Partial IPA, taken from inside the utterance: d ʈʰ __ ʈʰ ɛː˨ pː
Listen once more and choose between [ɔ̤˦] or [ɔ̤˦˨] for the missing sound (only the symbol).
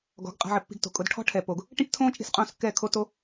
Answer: ɔ̤˦